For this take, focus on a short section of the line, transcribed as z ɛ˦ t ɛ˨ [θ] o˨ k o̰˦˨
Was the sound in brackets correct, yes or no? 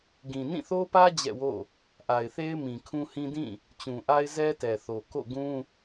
yes